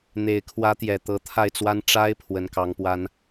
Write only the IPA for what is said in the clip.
n̪ e˨˩ ɪ̯ kʰ w ä˧˥ t̪ j ɛ˨˩ t̪ ɤ˧˥ t̪ʰ a˥˩ ɪ̯ t͡s w a˥ n ʈ͡ʂ a˥ ɪ̯ pʰ w ə˧˥ n k ɑ˧˥ ŋ p w a˥ n

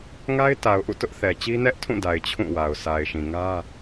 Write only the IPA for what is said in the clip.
ŋ a˦ ɪ̯ t a˨ ʊ̯ ʔ ṵ˦˨ t ʊ˦ ʔ θ ɛ˨ t͡ɕ i˦ n ɛ˦ ʔ tʰ ũ˦˨ d a˨ ɪ̯ t͡ɕʰ ũ˦˨ w a˨ ʊ̯ s a˨ ɪ̯ ʃ ĩ˨ ŋ ä˦

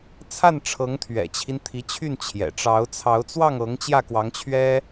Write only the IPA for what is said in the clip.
t͡sʰ a˥˩ n ʈ͡ʂʰ ɤ˧˥ ŋ t̪ʰ ɥ ɛ̰˨˩ t͡ɕʰ i˦ n t̪ʰ i˧˥ t͡ɕʰ y˥˩ n t͡ɕʰ j ɛ̰˨˩ ʈ͡ʂ ɑ˧˥ ʊ̯ t͡sʰ ɑ˧˥ ʊ̯ t͡s w ɑ˥˩ ŋ ɤ˧˥ ŋ t͡ɕ j ä˥˩ k w ɑ˧˥ ŋ t͡ɕʰ ɥ ɛ˥

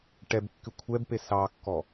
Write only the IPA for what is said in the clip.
ʈ ɛ b kː y kʷʰ ɛ b p e s ɑ kː ɔ

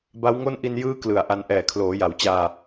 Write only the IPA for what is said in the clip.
b a˦˥ w ŋ o˥˩ n ʔ i˧ n j ɯː˦˥ k l ɯ˨˩ a̯ ʔ a˧ n ʔ ɛː˨˩ kʰ l oː˩˦ j a˩˦ w t͡ɕ aː˧

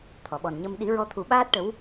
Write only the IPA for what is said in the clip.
t̪ʰ ɔ˨˩˨ ɓ ɔ˨˩ n ɲ ə˧ m ɗ i˨˩˦ ɹ ɔ˧ t̪ʰ u˨˩˦ ɓ aː˦˥ t̚ ʈ ə˧˥ w

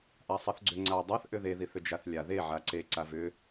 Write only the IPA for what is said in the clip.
ʔ a sˤ e θ ɡ͡ǀ ʏ ŋ͡ǀ a dˤ a θ ʔ ʏ ð e ð i θ ʏ d͡ʒ a θ lʲ a ð e ʕ a ǀ e ǀ a v ʏ

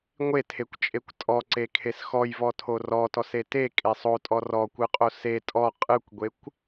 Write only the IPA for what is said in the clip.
ŋʷ e tʰ e kʷ t͡ʃʼ e kʷ tʼ ɔ ǀ e kʰ e s x ɔ j v ɔ tʰ o r ɔ t ɔ s e t e kʼ e sˤ o tʼ ɔ r ɔ kʷ ɯ qʼ o s e tʼ ɔ qʼ ɯ kʷ ɡʷ e kʷ

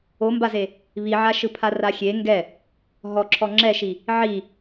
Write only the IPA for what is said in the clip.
o m b a z e | β i ʕ a ʃ ɯ pʰ a r a xʲ e ŋ ɡ ɛ | ɦ ɔ ǁʰ ɔ ŋ͡ǁ ɛ ʃ i | ʕ i

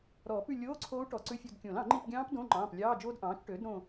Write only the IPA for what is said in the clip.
ɾ ɔː˨˩˦ p ʉ˦˨ lʲ oː˧˥˧ ǀʰ oː˦˥ u̯ ʈ ɔ˨˩˦ ǀ ʉ˧˥˧ fʲ o˦˨ d kʲ õ˨˩˦ l ɑ̃˨˩˦ ŋ͡ǃ i˦˨ p ɡʲ ɑ̃ː˦˥ p d õ˧˥˧ ŋ͡ǃ ɑ̃ː˩˧˩ p lʲ ɑː˧˥˧ d͡ʒ oː˦˥ d ʔ ɑ̃ː˩˥ t͡ʃ ʈ øː˩˥ d ɾ õ˦˨

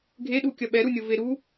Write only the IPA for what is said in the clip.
ɡʱ e ɗ u kʲ ɐ ɓ ɛ ɾ u nʲ o v e ɾ u

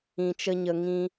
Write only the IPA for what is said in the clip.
ĩ˧ t͡ʃ ə˦ ɲ ə˧ ŋ ĩ˦

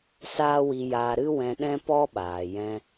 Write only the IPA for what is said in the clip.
s aː˦ w i˧ j aː˧ ɾ ɨ˦ w ɛ̃˧ ɗ ɛ̃˦ p ɔ˦ ɓ aː˨ j ɛ̃˧

